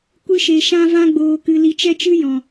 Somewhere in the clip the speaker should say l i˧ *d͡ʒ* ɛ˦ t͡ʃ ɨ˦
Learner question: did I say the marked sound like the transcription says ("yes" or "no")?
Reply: no